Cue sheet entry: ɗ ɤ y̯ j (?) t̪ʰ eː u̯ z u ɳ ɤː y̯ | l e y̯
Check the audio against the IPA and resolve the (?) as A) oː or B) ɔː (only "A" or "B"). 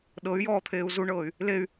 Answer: B